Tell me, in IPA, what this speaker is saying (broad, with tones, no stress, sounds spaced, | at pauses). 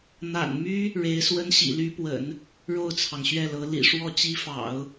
n̪ a̰˨˩ n m y˥ | ɻ e˧˥ ɪ̯ s w ə˥ n ɕ ḭ˨˩ l y˧˥ p w ə̰˨˩˦ n | ɻ o˥˩ ʊ̯ t͡sʰ ɑ˩ ŋ ɕ ɥ ɛ˥˩ l ɤ˧˥ l ḭ˨˩ ʂ w ɔ˥˩ t͡ɕ i˥ f ɑ̰˨˩˦ ʊ̯